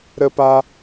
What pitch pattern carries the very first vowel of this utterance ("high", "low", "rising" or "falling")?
high